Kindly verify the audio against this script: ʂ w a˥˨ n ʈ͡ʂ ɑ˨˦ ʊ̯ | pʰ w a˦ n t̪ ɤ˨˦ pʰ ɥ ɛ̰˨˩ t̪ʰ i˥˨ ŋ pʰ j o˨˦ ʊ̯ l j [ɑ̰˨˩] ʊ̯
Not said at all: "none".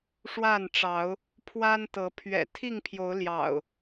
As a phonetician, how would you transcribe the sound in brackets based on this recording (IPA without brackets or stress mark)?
ɑ̰˨˩